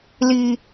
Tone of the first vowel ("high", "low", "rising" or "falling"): low